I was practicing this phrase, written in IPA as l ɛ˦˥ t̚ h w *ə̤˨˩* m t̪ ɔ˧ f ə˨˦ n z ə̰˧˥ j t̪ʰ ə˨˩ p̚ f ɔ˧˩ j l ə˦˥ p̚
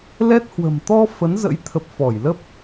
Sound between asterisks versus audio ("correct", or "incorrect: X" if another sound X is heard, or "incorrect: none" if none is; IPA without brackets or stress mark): correct